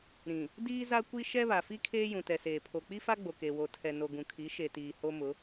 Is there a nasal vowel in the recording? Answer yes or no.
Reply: yes